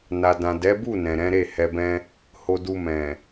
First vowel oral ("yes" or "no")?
yes